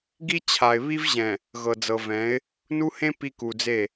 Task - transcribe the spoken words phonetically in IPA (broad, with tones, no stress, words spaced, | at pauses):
ɡi˦t͡ɕʰa˨ɪ̯βi˦vʑɛ̃˨ | ɣɤ˨d͡zɤ˨vɛ̃˨˦ɪ̯ | nu˦hẽ˦ pi˦ku˨d͡ze˦˨